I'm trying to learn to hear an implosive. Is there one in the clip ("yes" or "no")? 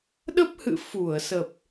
yes